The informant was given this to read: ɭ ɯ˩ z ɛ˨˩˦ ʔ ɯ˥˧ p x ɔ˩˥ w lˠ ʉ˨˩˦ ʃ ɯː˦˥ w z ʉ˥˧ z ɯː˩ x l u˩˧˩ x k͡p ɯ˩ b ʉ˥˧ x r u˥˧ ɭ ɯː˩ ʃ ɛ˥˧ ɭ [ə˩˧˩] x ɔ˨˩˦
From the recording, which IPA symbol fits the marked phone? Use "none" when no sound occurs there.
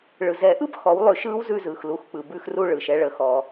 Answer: ə˩˧˩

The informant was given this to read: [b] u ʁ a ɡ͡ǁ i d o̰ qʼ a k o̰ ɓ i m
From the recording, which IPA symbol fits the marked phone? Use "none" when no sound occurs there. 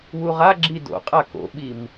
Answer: w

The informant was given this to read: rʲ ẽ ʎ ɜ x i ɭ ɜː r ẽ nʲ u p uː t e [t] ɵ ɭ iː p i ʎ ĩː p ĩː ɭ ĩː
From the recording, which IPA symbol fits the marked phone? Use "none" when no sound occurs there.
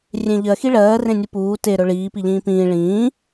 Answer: ɾ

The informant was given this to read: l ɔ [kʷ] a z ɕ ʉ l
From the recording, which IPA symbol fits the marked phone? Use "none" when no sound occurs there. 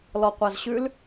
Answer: qʷ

